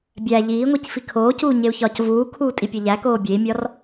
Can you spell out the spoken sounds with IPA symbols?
bʲ æ ʎ iː ŋʷ i c f i kʰ oː c uː ɲ e u̯ ç ɒ c v uː kʰ uː tʼ i pʲ ɒ ʎ æ k oː bʲ e i̯ mʲ ɒ r

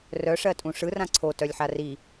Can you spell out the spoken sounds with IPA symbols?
r œ ʂ ɜ tʼ ũ ʂ ɯ r ã ǀʰ o t œ lʲ ħ a r i

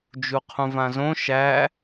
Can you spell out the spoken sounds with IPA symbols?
d͡ʒ u qʰ ũ v ã z õ ʃ æ

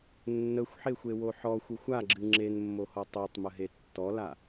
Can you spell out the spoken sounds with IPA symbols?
nː ə xʷ ħ e xʷ e w o ħ ɔ xʷ ɨ xʷ a ɡ͡ǁ ɨ ŋ͡ǁ e n mː o h ɔ tˤ o tˤ m ə ɦ e tː ɔ l a

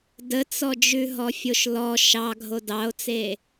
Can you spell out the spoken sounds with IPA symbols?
d ə t͡s ɔ d͡ʒ ʉ ɦ ɔ fʲ o ʃ l ɔ ʃ ɑ ɡʱ o d ɑ o̯ t͡s e

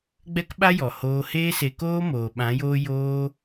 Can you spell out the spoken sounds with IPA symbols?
ɡ͡b ɛ˦ k ɓ a˦ j ɔ˨ h oː˧ h eː˦ s e˧ k oː˦ m oː˨ ɓ ã˨˦ j oː˦ j oː˦

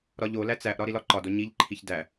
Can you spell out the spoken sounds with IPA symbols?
ɾ ɒ ʎ o l æ t͡s æ ʔ ɾ ɒ ɾ i l ɒ ǃ ɒ d o ɲ i ʎ ǃʰ i ç d æ

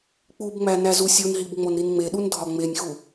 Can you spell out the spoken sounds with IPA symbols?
k͡p u b ŋ͡m æ n æ z u sʲ u n ɦ i b ŋ͡m o n ɾ i n ŋ͡m e ɗ u n dʱ ɒ ŋ͡m e nʲ x u

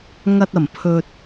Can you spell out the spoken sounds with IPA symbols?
ŋ ɐ˧ t̚ ɐ˨˩ m pʰ ɵ˧ t̚

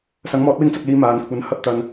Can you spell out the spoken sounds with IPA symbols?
s ɐ˨˥ ŋ m ɔː˨˥ t̚ w ɪ˥ ŋ t͡s ɐ˧ k̚ l iː˨˧ m aː˨ n kʷʰ ɐ˨˧ n h ɐ˧ p̚ t̪ ɐ˨ n

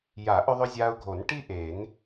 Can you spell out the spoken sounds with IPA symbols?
j a˨˩˦ ʔ ʏ˧ ðˤ ʏ˧ zʲ a˧ ʊ̯ ɡʱ o˨˩˦ n ʈ i˥ ʔ e˨˩˦ n

